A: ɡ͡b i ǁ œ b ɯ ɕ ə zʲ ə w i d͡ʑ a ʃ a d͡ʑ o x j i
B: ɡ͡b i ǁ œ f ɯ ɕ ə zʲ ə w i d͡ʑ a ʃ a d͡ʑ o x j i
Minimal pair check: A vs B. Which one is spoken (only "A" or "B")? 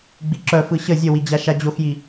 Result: B